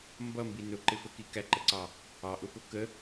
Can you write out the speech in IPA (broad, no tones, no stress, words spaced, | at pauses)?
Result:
mbʌmbi nʊǃɪfəki kæǃəǀɑ | ɑʔʊpʊ kə